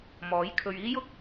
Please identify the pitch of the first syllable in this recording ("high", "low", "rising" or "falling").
rising